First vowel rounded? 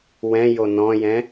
no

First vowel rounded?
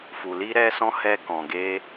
yes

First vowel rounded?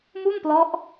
yes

